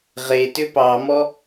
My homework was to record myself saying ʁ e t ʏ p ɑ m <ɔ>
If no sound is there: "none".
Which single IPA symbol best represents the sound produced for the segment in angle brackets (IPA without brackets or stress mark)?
ɔ